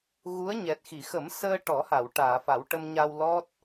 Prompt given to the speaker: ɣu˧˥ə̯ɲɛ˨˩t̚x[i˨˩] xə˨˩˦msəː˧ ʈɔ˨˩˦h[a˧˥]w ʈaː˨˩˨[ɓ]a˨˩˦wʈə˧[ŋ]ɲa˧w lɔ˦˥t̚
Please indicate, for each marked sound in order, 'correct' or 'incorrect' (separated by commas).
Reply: incorrect, incorrect, incorrect, incorrect